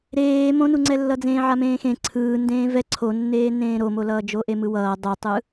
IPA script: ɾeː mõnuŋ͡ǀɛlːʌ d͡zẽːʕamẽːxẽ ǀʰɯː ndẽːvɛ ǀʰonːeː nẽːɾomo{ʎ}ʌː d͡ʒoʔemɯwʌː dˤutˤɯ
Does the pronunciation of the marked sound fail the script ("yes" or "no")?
yes